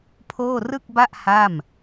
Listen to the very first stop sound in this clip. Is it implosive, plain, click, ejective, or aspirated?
aspirated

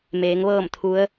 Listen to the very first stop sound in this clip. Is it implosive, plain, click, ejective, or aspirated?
aspirated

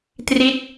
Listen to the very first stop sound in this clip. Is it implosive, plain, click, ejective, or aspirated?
plain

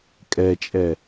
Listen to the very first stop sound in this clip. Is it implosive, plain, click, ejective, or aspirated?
ejective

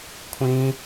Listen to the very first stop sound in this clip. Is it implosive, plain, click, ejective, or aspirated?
aspirated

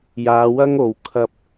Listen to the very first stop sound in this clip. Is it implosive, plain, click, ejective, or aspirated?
aspirated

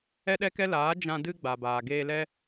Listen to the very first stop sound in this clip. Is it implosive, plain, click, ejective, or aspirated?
implosive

